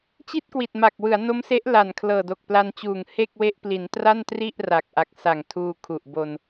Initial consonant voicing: voiceless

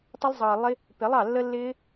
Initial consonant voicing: voiceless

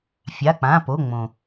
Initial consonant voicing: voiceless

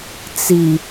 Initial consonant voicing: voiceless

